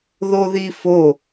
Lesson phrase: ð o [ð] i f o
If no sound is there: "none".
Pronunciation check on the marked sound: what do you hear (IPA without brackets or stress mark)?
ð